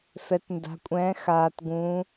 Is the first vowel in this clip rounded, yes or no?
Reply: no